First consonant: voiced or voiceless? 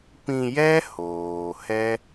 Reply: voiceless